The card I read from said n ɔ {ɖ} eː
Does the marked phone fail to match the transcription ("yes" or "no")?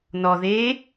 yes